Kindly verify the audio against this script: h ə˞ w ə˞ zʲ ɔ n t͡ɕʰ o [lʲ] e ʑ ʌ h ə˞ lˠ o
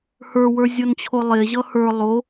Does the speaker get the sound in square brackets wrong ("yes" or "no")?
yes